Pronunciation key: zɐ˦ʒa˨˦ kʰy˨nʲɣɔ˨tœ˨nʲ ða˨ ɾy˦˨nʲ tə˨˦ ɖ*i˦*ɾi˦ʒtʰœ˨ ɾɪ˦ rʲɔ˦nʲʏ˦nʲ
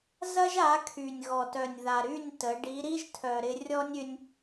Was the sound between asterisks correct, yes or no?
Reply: no